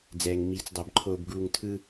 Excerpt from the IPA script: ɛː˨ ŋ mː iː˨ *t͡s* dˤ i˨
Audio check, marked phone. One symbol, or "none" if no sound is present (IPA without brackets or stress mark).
t͡s